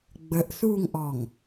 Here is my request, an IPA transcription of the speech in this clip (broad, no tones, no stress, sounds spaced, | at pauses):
ɡ͡b ə ʔ θ uː ŋ ʔ ɔ ŋ